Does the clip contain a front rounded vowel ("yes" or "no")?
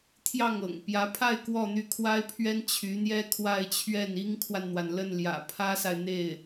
yes